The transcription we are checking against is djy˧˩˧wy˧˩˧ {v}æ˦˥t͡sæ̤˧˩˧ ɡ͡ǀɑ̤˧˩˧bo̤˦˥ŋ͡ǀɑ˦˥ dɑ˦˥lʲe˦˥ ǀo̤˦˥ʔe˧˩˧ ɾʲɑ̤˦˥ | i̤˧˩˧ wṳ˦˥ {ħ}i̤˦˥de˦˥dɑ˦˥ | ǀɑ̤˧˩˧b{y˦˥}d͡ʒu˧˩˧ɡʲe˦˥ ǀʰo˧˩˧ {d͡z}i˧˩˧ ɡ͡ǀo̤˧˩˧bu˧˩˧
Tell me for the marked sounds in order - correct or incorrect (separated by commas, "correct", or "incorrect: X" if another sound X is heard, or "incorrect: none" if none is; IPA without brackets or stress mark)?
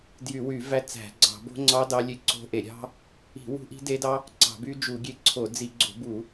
correct, incorrect: ʔ, correct, correct